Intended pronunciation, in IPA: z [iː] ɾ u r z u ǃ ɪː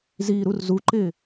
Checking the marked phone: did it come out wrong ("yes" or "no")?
no